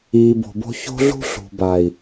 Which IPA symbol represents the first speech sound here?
iː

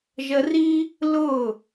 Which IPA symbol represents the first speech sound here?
ʒ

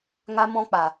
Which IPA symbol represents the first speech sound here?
ŋ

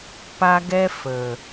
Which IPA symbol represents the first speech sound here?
p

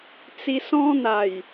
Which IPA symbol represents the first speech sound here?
t͡s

